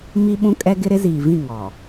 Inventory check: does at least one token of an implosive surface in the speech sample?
yes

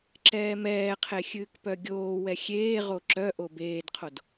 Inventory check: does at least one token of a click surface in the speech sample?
yes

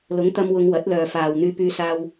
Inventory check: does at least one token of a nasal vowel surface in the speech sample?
no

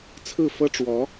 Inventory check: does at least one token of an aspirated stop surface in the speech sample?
yes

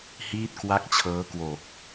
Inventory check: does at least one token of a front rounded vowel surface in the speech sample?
no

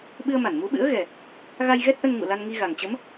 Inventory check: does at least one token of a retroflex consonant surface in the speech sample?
no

